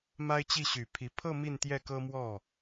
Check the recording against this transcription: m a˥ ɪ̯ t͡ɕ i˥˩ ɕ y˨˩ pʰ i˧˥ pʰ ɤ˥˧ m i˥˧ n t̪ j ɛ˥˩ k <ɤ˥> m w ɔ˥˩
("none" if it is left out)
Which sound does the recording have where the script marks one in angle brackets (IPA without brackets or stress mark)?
ɤ˥